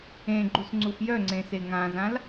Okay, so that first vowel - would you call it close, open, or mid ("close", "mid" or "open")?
mid